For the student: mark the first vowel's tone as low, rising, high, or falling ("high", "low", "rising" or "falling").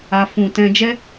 low